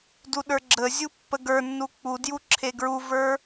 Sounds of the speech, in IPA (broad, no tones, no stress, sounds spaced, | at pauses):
d u ɗ ə˞ ɡ͡ǁ ə zʲ u pː ə ɡ ə˞ nː u k͡p u d j u ǁʰ e ɡ ɹ u v ə˞